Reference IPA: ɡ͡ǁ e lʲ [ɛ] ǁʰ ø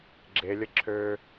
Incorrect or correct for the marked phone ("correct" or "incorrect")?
incorrect